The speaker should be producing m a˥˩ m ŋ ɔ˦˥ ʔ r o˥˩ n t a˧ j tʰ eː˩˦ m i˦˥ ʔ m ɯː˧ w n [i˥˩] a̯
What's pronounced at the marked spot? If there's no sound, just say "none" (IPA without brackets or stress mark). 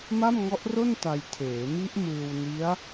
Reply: i˦˥